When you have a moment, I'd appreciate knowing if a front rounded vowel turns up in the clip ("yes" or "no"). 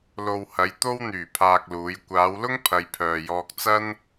yes